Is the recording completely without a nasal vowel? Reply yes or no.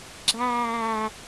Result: yes